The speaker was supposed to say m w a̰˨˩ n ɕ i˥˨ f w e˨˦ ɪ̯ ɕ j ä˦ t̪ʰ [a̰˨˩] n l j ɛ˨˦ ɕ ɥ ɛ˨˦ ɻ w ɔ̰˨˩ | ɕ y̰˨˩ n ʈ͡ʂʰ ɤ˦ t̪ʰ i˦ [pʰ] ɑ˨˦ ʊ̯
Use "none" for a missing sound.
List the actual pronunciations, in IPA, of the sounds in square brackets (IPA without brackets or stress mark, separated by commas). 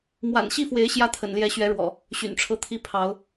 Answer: ə̰˨˩, pʰ